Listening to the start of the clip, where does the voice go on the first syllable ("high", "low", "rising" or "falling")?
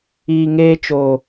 low